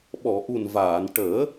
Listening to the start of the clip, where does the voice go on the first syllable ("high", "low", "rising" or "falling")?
low